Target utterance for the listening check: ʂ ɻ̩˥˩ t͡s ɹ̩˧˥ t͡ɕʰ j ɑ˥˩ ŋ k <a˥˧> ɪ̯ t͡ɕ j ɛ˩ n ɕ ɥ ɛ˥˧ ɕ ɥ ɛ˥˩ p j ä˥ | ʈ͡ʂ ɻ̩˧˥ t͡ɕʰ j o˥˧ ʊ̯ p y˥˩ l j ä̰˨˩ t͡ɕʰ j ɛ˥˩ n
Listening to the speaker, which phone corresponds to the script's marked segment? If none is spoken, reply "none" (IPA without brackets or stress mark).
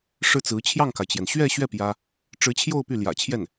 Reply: a˩